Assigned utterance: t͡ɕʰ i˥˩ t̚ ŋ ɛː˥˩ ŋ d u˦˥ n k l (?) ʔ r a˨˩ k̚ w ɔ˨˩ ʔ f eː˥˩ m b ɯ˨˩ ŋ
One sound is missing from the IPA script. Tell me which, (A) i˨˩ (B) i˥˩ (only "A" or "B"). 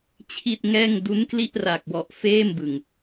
B